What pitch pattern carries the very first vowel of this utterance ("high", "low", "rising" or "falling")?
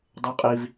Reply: rising